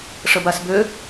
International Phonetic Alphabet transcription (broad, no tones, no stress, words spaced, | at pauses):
ʂəbasbø